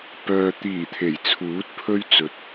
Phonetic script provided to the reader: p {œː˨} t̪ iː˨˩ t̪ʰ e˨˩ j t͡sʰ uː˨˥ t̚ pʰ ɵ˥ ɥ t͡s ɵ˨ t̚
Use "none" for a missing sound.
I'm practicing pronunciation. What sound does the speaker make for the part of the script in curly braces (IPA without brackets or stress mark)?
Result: œː˨